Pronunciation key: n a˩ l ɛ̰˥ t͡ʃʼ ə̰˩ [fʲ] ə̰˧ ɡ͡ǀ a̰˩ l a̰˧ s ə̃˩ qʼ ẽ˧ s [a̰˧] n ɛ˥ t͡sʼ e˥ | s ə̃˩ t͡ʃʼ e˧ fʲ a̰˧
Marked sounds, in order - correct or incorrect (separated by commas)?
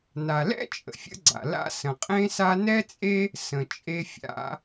correct, incorrect